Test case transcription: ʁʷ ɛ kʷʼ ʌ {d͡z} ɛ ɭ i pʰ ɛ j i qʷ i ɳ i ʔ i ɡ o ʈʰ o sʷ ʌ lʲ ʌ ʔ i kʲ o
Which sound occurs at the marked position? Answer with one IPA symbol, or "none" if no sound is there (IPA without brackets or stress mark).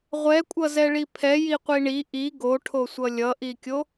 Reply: z